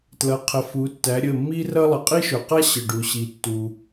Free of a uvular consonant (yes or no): no